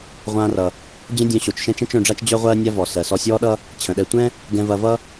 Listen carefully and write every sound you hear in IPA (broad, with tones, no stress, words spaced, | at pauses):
ʁʷãː˧rʌ˩ | d͡ʑə̃˥dʲœ̃˧ɕo˩t͡ʃʃɛ̃˥ t͡ʃɛ̃˥t͡ʃœ̃˧ɖ͡ʐa˥t͡ʃ d͡ʑœ˥ʁʷɜː˥nʲa˥ vɔ˩ sɜ˩sɔ˧sʲɔː˥ɗʌ˥ | t͡ɕʰə̃˩ɗɛ˧ tʷɛ̃˥ | ɡɛ̃˧vɐ˧vʌ˥